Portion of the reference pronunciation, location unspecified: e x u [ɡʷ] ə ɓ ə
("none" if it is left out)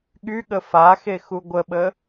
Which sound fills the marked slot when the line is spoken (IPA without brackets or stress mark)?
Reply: ɡʷ